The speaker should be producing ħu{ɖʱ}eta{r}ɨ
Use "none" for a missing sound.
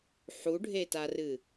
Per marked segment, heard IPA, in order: ɖʱ, r

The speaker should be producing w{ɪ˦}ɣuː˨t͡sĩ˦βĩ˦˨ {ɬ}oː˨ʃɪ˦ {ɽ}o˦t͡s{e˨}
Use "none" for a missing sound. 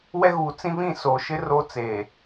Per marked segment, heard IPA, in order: ɛ˦, s, r, eː˨

